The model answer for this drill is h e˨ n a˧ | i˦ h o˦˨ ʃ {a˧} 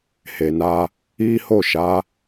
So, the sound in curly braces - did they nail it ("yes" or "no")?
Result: no